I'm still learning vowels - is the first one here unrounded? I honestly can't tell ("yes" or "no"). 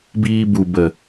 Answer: yes